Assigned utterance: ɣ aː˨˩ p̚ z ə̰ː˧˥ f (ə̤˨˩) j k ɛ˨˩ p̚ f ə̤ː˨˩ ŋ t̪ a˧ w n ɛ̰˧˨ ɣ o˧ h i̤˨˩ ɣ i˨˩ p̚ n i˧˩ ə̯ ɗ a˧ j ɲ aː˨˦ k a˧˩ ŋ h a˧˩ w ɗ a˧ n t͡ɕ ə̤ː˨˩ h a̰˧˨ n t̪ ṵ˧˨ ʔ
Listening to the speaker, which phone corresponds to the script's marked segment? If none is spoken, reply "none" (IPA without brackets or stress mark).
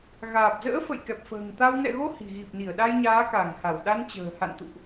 ə̰˧˨